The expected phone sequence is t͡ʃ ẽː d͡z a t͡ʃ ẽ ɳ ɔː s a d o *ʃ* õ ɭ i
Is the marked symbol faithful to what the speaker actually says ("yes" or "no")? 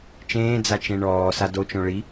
no